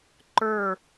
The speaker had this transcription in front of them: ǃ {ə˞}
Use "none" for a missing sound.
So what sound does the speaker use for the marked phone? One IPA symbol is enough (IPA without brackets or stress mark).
ə˞